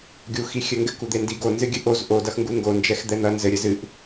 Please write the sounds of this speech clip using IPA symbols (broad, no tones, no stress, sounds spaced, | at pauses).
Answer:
ɡʲ u x i xʲ ɘ ŋ ɡ ɘ k u d̪ e n d i ɡ o n z ɨ ɡʲ ɨ ʔ o z ʔ o d ɐ x ŋ ɡ u ŋ ɡ o n d͡ʒ ɛ x d̪ ɛ n̪ ɐ n z ɘ ɾʲ ɘ z ɨ ʔ